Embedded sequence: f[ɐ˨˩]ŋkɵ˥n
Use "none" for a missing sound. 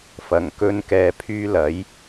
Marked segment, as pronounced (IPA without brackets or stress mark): ɐ˨˩